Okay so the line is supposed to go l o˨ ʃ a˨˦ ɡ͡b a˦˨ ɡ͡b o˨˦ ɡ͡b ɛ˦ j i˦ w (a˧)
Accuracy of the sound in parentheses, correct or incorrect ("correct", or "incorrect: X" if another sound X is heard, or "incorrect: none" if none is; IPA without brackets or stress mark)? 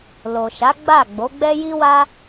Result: incorrect: a˦